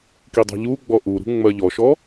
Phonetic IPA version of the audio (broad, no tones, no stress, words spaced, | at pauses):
kidˤɑ̤ʎuɡ͡bɔ ʔuɾṳ ŋ͡mɜʎɔʃɔ